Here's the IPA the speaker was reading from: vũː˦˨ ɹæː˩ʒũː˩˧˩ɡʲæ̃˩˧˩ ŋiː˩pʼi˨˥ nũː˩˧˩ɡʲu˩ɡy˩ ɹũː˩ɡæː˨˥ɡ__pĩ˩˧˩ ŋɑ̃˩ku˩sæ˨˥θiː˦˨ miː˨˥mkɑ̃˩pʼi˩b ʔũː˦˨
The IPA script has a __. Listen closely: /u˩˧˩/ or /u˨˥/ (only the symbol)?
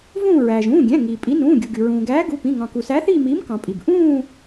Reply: u˩˧˩